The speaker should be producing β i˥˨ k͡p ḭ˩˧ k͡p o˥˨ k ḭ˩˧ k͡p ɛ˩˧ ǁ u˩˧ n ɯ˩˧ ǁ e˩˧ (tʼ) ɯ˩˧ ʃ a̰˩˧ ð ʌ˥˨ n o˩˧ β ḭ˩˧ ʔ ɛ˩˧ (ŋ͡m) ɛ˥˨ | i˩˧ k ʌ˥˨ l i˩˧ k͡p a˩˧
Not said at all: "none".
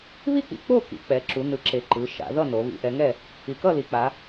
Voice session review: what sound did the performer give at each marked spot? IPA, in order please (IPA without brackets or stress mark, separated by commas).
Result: ǃ, ŋ